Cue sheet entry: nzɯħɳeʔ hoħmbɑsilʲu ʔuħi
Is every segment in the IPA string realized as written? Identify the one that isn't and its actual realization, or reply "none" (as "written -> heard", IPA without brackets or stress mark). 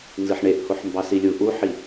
none